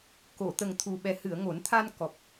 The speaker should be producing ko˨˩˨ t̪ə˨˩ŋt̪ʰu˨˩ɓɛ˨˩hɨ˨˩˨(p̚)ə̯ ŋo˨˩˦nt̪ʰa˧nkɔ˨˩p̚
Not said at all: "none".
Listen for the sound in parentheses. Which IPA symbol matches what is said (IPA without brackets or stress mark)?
none